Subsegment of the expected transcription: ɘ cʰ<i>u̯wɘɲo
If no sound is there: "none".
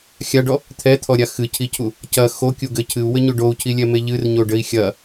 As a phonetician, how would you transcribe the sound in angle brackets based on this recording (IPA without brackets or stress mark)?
ɨ